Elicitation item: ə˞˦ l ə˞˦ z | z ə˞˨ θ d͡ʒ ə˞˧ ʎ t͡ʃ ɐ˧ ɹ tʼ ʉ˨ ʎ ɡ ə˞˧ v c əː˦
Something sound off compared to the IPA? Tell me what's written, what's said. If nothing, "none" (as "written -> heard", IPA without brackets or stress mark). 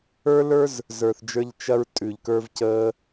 ɡ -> k